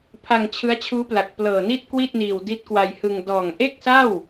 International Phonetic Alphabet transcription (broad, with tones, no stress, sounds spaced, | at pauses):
pʰ a˧ ŋ t͡ɕʰ ɯ˦˥ a̯ t͡ɕʰ uː˦˥ p l a˨˩ k̚ p l ɤː˨˩ n i˥˩ t̚ k w i˥˩ t̚ n iː˨˩ w d i˦˥ t̚ k w a˧ j h ɯ˧ ŋ d ɔː˨˩ ŋ ʔ e˥˩ k̚ s a˥˩ w